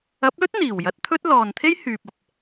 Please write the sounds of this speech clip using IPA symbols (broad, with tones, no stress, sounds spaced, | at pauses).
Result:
ɐ˨˥ p̚ l ɵ˥ t̚ n̪ iː˨˩ w j ɐ˨˥ t̚ t̪ʰ ɵ˥ t̚ l ɔː˨ n t̪ʰ e˥ j h yː˨ p̚ ɐ˨ p̚